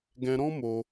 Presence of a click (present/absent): absent